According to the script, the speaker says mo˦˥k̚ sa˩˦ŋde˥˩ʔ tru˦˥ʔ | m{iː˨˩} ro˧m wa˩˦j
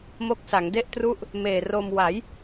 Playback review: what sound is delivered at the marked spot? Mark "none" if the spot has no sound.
eː˨˩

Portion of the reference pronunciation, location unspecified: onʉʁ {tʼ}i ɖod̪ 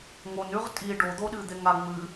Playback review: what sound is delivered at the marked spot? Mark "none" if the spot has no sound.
tʼ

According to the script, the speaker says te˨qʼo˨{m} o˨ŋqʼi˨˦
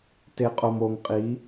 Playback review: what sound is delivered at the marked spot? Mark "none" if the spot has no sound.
m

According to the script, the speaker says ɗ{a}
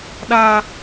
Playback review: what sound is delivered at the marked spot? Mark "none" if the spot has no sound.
a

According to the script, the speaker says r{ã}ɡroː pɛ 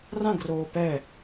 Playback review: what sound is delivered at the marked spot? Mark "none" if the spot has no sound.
ã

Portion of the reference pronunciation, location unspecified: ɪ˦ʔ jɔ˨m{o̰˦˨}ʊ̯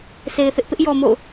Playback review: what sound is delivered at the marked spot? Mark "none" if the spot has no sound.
o̰˦˨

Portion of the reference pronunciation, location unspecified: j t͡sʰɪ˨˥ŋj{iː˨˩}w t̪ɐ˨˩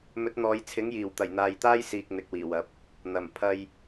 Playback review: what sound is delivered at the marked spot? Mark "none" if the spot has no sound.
iː˨˩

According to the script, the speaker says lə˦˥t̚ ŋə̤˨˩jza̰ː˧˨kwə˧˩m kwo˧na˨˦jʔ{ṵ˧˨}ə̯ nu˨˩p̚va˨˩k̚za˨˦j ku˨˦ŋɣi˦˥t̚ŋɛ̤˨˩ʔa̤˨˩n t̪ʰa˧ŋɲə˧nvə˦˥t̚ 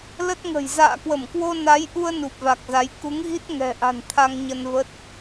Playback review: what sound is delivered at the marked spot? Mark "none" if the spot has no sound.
u˧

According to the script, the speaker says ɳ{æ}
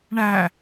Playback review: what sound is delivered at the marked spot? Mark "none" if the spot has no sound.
æ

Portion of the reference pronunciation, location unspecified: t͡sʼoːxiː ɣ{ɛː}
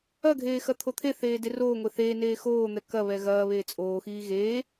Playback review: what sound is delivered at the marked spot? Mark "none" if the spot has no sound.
eː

